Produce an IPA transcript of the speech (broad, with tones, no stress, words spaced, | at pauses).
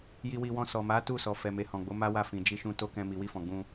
ji˧wi˧wɔ̃˧ sɔ˨ma˨˦ tu˦˨sɔ˨ fɛ˨me˨ hɔ̃˨ɡ͡bo˨˦ma˦wa˦˨ fĩ˨d͡ʒi˧ʃũ˧ to˦kɛ̃˧ mi˨wi˧fɔ̃˨ ɡ͡bũ˧